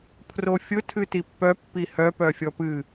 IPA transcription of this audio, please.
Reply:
pʰ r o fʲ ʊ tʰ ɨ t i pː œ pː i h œ p œ fʲ ɔ p ɨ

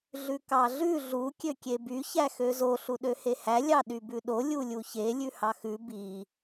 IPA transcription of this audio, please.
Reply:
ɮ ʉ k ɑ ɮ ʉ ɮ u kʲ ø kʲ e b y ç æ x ø z o ɬ u ɗ ø h e h æ lʲ ɑ ɗ y b ʉ ɗ o lʲ u lʲ u ç e lʲ ʉ h ɑ x ʉ b i

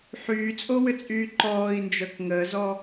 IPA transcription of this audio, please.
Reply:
ħ yː t͡sʼ o w ʏ t͡sʼ yː ǃ ɔː i̯ n d͡ʒ œ k ŋ əː z ɔ

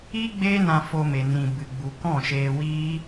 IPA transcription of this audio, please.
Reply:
i˦ ɡ͡b eː˦ n ã˧ f o˧ m e˧ n ĩ˧ b ɨ˨ ɡ͡b u˨ k ɔ̃˦˨ ʃ eː˧ w iː˦

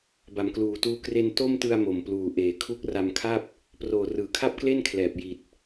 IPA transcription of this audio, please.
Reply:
b a˩˦ m k l uː˨˩ t uː˧ k r e˧ n t o˥˩ m t ɯ˧ a̯ m o˨˩ m p l uː˨˩ ʔ eː˨˩ kʰ u˦˥ k̚ r a˧ m kʰ a˥˩ p̚ | p r oː˨˩ r ɯː˩˦ kʰ a˥˩ p̚ k l e˥˩ n kʰ l ɛː˨˩ p̚ j i˨˩ t̚

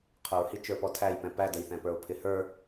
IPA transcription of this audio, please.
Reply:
qʰ ʊ ɹ h i t͡ʃ ə˞ p ɔ tʰ æ j p ɛ̃ p æ d ə j θ ɛ̃ p ə˞ o̯ pʰ ɪ h ə˞

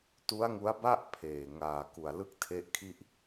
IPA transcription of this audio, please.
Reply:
t u˦˥ a̯ ŋ u˦˥ a̯ b a˥˩ ʔ pʰ eː˨˩ ŋ aː˨˩ k u˨˩ a̯ l ɯ˥˩ k̚ tʰ e˦˥ ʔ kʰ i˥˩ ʔ

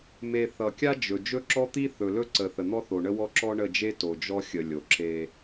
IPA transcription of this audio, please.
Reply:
m e˨ θ ʌ˨ kʲ a˦ d͡ʒ ɵ˨ d͡ʒ ɵ˦ ǁ ɔ˦ t̪ i˦ θ ɵ˨ l ɵ˦ ǀ ə˨ θ ə˨ n̪ ɔ˦ θ o˨ ɳ ə˦ w ɔ˦ ǁ ɔ˦ ɳ ə˦˨ d͡ʒ e˦ t o˨ d͡ʒ ɔ˦ xʲ ə˨ lʲ o˨ ǁ e˦

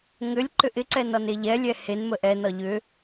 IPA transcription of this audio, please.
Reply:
ŋ ʏ lʲ ǃ ʏ ʔ ɪ ǀ ɛ n ɒ n e ʎ ɛ lʲ ɛ h e n m ə ʔ ɛ n ɒ ʎ ʏ

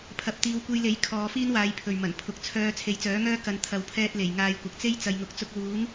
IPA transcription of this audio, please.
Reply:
pʰ ɐ˨˥ p̚ t̪ iː˨˧ w kʷ e˧ j l e˨˥ j kʰ ɔː˨˧ f iː˥ n w aː˨˧ j pʰ ɵ˨ ɥ m ɐ˨˩ n pʰ ʊ˨ k̚ t͡sʰ œː˧ t͡sʰ e˨˥ j t͡s œː˨˥ ŋ œː˥ k ɐ˨˧ n t̪ʰ ɐ˨ w pʰ ɛː˧ t̚ l e˨˩ j ŋ aː˨˧ j kʷ ɐ˨ k̚ t͡s e˥ j t͡s ɐ˨ j ŋ ʊ˨ k̚ t͡s ʊ˧ k̚ w uː˨˥ ŋ

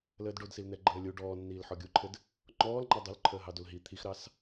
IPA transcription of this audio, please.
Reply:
l əː d ɖ o d s i l n ɛ ɡ͡ǃ əː lʲ u ɖ ɔː nː iː l ħ ɔ ɡʲ u ǃʰ ɘ d | ŋ͡ǃ ɔː l ŋ͡ǃ ɑ dˤ o l ǃʰ əː ɦ ɑ d o l ɦ i t̪ʰ i x ɾ ɑ s

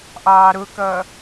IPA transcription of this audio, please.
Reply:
ʔ ɑː ɾ ʊ k ʌː

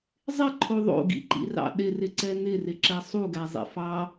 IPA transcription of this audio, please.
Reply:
zˤ ɪ ǃʰ o ðˤ o̰ ɡ ḭ ǃ ḭ r ɑ̰ ɗ ɪ r ɪ ǀ ɛ n̪ ɪ r ɪ ǁ ɛ sˤ u ɡ æ zˤ ḭ f ɑ

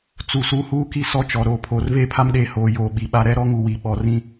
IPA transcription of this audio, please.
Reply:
t͡s u˨ s u˦ h uː˦ k i˦ s ɔ˦ t͡ʃ ɔ˨ ɾ oː˨ pʰ oː˨ r v eː˦ pʰ a˦ m ɗ eː˨ h oː˨ j oː˨ ɓ i˨ ɓ a˦ ɾ ɛ˦ ɾ ɔ˦ ŋ u˨ w i˨ ɓ ɔ˨ r ĩ˦

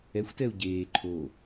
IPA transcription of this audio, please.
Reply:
ɛ xʷ t ɛ u̯ ɟ eː ǃʰ o

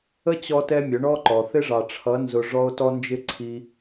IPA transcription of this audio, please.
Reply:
ə˦ t͡ɕ ɔ˧ t ɛ˧ mʲ ʊ˨˦ ɳ ɔ˦ ǃ ɔ˨ θ ɪ˦ ʐ ɑ˨ ʈ͡ʂʰ ʌ˨˦ n z ʊ˧ ʐ ɔ˦ o̯ t ɔ˦ n d͡ʒ ɪ˦ ǀʰ i˧

